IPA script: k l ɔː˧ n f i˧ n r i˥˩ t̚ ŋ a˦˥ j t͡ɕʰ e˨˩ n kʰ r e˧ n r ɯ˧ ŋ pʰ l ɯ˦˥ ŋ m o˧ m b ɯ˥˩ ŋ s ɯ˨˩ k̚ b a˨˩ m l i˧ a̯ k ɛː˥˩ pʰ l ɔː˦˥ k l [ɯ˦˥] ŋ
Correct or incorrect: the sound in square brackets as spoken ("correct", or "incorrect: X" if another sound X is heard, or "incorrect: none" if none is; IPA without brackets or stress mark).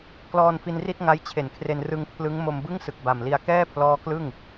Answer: incorrect: ɯ˥˩